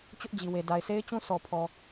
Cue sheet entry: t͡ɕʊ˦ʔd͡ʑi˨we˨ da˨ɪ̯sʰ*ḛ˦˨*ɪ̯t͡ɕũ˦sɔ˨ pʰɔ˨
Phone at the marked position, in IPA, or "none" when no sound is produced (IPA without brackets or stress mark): e˦